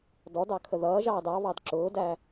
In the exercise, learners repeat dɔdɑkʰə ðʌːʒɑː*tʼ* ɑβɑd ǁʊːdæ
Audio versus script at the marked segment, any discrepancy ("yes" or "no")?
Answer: yes